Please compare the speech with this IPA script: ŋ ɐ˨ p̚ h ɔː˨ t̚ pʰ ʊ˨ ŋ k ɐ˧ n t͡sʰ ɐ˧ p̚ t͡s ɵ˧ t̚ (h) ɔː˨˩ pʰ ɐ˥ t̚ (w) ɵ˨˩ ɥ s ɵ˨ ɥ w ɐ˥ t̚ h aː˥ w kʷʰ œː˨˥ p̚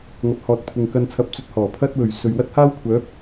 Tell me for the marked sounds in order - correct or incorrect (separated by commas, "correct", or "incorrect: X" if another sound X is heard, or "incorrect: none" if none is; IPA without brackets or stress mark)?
correct, correct